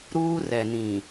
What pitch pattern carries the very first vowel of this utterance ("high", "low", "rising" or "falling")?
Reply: high